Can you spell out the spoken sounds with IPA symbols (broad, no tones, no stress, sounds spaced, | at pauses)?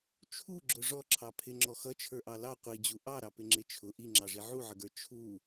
t͡ʃʰ u ɡ͡ǁ ʊ ʐ ɔ ǁʰ ɑ pʰ ɪ ŋ͡ǁ ɔ x ʌ t͡ʃʰ ə˞ ʔ ɑ l ɑ qʷ i d͡ʑ u ʔ ɑ ɾ ɑ p ɪ ŋ͡ǁ ɪ t͡ʃʰ ʊ ʔ i ŋ͡ǁ ɑ ʐ i ʕ u ʕ ə ɡ ə˞ t͡ʃʰ u